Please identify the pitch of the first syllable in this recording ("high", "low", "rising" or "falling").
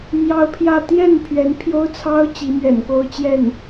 high